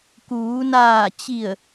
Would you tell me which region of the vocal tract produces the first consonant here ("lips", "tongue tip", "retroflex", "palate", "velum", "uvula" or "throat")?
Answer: velum